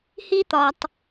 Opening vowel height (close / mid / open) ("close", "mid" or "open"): close